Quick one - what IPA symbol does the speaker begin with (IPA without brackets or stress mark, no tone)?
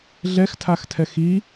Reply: ɮ